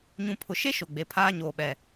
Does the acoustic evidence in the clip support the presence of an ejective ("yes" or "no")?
no